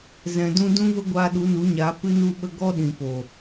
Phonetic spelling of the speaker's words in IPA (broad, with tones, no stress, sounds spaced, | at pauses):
z ɛ̃˨ d ũ˧ d ũ˦ v ə˦ ɡʷ aː˧ ɗ u˨˦ n u˨˦ ɲ aː˨˦ p ɨ˧ n u˧ ɓ ə˧ ɡ ɔ˦ ɗ ĩ˨ p o˨